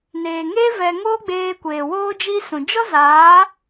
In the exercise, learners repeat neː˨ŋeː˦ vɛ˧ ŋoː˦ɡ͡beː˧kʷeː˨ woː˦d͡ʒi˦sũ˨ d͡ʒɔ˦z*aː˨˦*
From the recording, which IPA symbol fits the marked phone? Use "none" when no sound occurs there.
aː˨˦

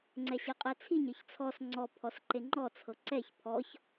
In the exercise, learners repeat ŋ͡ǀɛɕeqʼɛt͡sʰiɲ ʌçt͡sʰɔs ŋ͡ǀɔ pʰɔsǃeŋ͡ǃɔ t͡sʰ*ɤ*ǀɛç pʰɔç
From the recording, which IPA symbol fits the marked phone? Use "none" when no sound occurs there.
ɤ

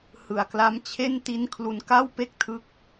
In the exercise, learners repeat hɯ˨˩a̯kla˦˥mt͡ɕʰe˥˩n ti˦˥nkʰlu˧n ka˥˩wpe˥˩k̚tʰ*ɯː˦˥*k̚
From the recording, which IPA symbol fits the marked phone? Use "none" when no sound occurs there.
ɯ˦˥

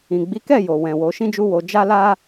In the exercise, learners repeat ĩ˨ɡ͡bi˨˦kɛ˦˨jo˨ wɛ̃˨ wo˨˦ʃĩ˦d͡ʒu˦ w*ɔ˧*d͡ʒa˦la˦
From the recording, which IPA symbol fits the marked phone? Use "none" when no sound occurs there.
o˧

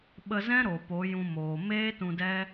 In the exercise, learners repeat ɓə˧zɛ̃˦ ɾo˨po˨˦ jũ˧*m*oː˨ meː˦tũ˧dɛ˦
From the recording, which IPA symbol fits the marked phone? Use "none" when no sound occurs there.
m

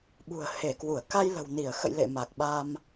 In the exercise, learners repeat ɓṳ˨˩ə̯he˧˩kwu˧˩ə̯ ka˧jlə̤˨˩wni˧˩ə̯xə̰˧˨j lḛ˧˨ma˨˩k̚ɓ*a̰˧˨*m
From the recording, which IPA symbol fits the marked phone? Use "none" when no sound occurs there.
a˧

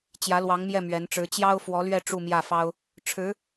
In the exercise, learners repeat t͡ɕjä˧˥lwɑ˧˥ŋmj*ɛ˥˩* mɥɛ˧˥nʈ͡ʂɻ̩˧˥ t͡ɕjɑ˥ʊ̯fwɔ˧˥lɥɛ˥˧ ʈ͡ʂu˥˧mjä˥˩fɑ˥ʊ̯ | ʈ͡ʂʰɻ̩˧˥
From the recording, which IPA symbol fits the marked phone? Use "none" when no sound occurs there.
ɛ˥˩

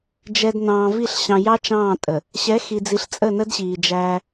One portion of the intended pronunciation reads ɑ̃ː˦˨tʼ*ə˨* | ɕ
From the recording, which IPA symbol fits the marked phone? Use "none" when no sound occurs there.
ə˨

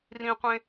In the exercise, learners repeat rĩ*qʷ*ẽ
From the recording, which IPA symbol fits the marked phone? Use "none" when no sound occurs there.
qʷ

